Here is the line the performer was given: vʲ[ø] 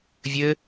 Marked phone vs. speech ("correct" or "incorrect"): incorrect